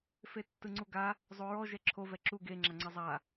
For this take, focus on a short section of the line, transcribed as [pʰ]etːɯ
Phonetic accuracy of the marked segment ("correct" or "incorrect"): incorrect